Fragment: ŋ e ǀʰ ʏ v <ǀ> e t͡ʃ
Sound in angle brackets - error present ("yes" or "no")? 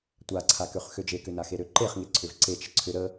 no